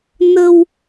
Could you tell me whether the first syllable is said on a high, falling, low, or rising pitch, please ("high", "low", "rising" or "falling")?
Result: low